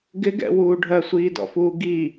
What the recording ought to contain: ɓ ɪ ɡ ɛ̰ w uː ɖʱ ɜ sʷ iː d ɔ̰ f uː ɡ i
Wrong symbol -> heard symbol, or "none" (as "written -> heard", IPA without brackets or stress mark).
ɓ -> ɡ